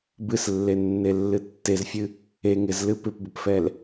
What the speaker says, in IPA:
b ɨ s lː e nː e lː ɨ tː e z fʲ ɨ | e ŋ ɪ z l ɨ p ɪ p b ə p f ɛ l

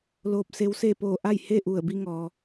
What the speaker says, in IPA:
l oː˧ p̚ s e˧˥ w s e˥˨ p oː˧˩ ʔ a˥˨ j h e˥˨ ʔ u˧˩ ə̯ b i˧ ŋ ɔː˩

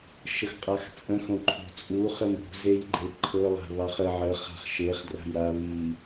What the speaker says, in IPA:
ʃ ə x qʼ a x t͡sʼ ə̃ x õ ǃʰ o̤ t͡sʼ u χ ə m ṳ z e j ɡ͡ǃ e ǃʰ ɤ lˠ a̤ β ɑ χ ə ʕ ə χ a̤ χ ʃ e χ d r a̤ j ɾ a β i

